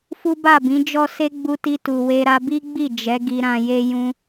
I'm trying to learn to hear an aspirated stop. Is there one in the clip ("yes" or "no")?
no